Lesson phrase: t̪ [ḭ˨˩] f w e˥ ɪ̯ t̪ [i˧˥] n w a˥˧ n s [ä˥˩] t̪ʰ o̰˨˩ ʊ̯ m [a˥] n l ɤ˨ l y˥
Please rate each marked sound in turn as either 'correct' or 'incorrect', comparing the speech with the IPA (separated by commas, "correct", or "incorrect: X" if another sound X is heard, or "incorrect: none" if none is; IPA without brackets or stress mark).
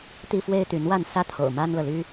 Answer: incorrect: i˥, incorrect: y˧˥, correct, correct